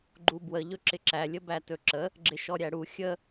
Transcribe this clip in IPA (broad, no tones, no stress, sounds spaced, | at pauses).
ɡ͡ǃ u b w ə ʎ ɵ ǁ ɪ ǁ æ lʲ ə b æ t ɵ ǁ ə | ɡ͡ǁ ɪ ʃ ɔ ɾʲ æ ɽ u xʲ ə